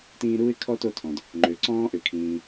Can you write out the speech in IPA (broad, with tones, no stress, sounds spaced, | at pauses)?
t ĩː˦ ɾ uː˥ ɪ̯ kʰ ɔ˥ t o˦ tʰ ɔ̃˩ d | ŋ͡ǃ ø˩ ǀ ɔ̃ː˦ ʔ ʏ˩ kʰ ĩː˨